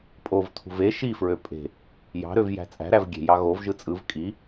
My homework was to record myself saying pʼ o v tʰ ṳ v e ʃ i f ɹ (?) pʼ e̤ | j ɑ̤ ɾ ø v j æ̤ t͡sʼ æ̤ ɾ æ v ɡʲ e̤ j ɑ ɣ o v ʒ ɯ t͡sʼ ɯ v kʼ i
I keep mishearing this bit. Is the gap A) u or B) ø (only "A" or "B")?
B